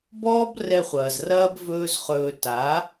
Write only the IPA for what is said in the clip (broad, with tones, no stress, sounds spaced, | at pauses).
b ɔː˦ b r ɛ˧ χʷ ɐː˨ z r ɐː˦ b v ɵː˦ z χ ɵː˧ t a˨˦